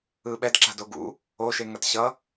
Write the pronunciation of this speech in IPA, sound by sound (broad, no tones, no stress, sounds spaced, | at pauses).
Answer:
ɯ ɓ ɛ d ǁ a̤ d o ɡ ṵ | o ʃ e ŋ ʌ t ɕ ʌ